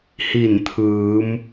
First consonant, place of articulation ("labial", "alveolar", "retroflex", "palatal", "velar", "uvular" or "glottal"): glottal